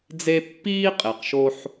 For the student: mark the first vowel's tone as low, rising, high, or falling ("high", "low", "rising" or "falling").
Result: high